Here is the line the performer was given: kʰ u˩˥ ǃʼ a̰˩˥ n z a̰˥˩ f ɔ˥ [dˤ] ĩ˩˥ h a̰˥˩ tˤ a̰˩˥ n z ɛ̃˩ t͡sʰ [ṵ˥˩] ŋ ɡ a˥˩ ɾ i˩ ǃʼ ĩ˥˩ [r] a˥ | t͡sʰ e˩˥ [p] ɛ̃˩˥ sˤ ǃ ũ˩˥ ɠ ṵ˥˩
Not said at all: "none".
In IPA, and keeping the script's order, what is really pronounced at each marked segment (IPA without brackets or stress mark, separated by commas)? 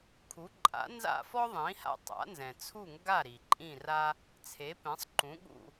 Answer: ðˤ, u˥˩, r, p